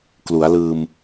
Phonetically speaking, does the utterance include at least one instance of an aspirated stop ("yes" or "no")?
no